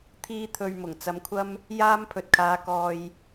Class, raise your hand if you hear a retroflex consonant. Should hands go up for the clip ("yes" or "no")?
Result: no